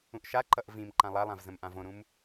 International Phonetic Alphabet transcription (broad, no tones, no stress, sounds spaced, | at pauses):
ũ ʔ ʃ a ǃ ʌ ʔ v ĩ m ǃ ã lˠ a lˠ ã v z ə̃ m ʔ ã v õ ɾ ũ m